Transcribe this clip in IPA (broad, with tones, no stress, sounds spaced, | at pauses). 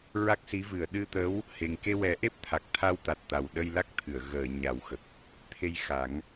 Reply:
ɹ a˦˥ k̚ s i˧˥ v ɨ˨˩˨ ə̯ ɗ ɨ˧ t̪ ə˧˥ w | h e˨˩ ŋ k e˧ w ɛ˨˩˦ ʔ e˦˥ p̚ t̪ʰ a˨˩ k̚ t̪ʰ a˧ w t̪ a˨˩ t̚ t̪ a˨˩ w ɗ ə˧ j l a˦˥ k̚ t̪ʰ ɨ˨˩˨ ə̯ ɣ əː˨˩˨ ɲ a˨˩˦ w x ə˨˩ k̚ | t̪ʰ e˧ j x a˨˩˦ ŋ